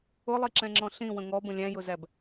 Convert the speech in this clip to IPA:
ʊ lˠ i ǁ ɛ̃ ŋ͡ǁ ɔ̃ ɬ ĩ w ə̃ ŋ ɔ b ə̃ lʲ æ̃ j ʊ z æ b

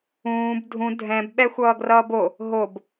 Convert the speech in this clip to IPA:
ũː b dʱ ũ dʱ ɛ̃ b ɓ ɛ xʷ ʌː ɡ r ʌː b o | ɦ o b

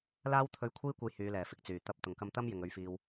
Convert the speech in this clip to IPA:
l aː˥ w t̪ʰ ɵ˧ ɥ kʷʰ iː˥ kʷ ɐ˧ j h yː˨˧ l ɛː˨˩ f ɪ˧ k̚ t͡s yː˨˩ t̪ ɐ˧ p̚ t̪ ʊ˨˩ ŋ k ɐ˧ m t̪ ɐ˥ m j ɪ˨ ŋ ɵ˧ ɥ f iː˧ w

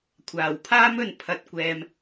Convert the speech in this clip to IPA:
kʷʰ aː˨ w pʰ aː˥ m ɵ˧ n pʰ ɐ˧ t̚ kʷ ɛː˧ m

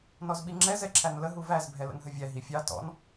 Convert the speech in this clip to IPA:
n ɔ z ɓ i ŋ͡ǁ ɛ z ɛ ǁʰ æ n l ə ɦ u v æ z bʱ ɛ l ə̰ n ɦ ə vʲ æ ɦ i fʲ ɑ t ɔ̰ n

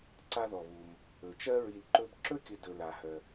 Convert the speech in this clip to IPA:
ǀ a˦ ð ɔ˩ β u˩ m | ɵ˩ t͡ʃ ɜ˥ ɹ i˨ l ǃ ɵ˦ b ǁ ɵ˥ kʲ ɵ˨ d ɵ˨ l a˩ h œ˩

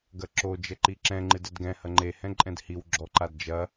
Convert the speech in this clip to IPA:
ɡ ɐ ǁ o d͡ʒ ɛ ǃ i ǁ ɛ̃ ŋ͡ǃ ɨ d ɛ d ɡ ɛ̃ h ɐ ŋ͡ǃ e h ɛ̃ ǃʼ ɛ̃ d h i w ɡ͡ǁ ɔ ǃ a d d͡ʒ ɐ

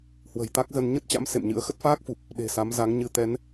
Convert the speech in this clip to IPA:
h w ə̤˨˩ j t̪ a˦˥ k̚ z ə˧ n ɲ ə˦˥ t̚ t͡ɕ a̰˧˥ m s ḛ˧˨ m ɲ ɨ̰˧˥ ə̯ x ə˦˥ t̚ f aː˦˥ k̚ f u˨˩ p̚ | ɗ e̤˨˩ s a˨˦ m z a˨˦ ŋ ɲ ɨ˨˦ t̪ ɛ˨˦ n

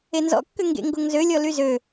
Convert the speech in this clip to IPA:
e n z ɔ̰ kː ø ŋ ɡ ḛ ŋ ɡ o ŋ z ø lʲ ɔ l y z ø

